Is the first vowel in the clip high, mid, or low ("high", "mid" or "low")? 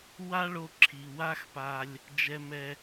low